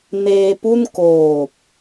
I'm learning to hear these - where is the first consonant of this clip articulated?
tongue tip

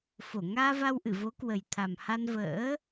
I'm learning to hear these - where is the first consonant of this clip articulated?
lips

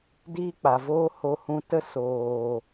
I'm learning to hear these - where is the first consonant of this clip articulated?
tongue tip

